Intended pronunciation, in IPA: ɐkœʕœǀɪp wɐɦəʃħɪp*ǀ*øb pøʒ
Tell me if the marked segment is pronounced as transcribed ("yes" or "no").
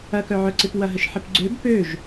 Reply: no